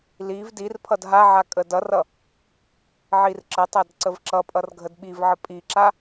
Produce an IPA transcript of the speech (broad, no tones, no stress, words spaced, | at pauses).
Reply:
liv dirpʰʌd ɦaʕa kʼədʌrʌ | ʕirǁətˤad ǀəvǁʌpʼʌr ɡʱədɓivʕə pʼiǁa